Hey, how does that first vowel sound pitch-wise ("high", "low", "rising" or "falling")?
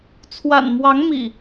low